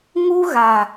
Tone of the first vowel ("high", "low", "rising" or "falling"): high